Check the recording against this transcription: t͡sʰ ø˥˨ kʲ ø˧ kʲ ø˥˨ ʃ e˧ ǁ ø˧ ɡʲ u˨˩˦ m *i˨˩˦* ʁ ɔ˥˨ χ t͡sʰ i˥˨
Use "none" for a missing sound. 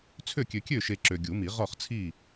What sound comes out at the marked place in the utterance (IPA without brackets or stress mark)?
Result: i˨˩˦